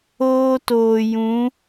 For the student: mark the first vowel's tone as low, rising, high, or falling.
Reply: high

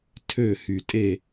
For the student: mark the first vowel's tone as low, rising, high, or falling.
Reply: falling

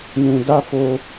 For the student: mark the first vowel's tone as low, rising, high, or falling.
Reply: low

